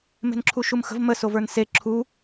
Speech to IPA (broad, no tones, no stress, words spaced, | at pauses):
me̤nǁʰuʃumxə̤v mə sovə˞nse ǁʰu